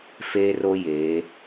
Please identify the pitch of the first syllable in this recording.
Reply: high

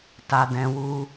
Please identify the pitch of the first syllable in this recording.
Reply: low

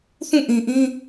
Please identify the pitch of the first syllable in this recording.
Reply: falling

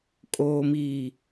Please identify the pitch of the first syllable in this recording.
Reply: low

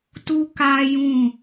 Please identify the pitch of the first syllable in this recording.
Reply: high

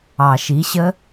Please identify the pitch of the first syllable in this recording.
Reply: low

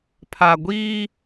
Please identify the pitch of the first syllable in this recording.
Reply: low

